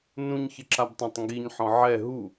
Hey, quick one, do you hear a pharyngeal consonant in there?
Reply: yes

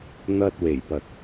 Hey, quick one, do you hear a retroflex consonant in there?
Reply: no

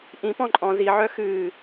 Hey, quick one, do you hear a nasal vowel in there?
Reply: yes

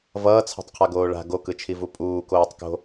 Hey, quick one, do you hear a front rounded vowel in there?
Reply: no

